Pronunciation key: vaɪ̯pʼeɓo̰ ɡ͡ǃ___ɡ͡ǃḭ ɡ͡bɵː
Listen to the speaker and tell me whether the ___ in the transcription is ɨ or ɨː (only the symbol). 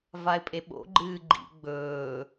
ɨː